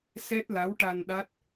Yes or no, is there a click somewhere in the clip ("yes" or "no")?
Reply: no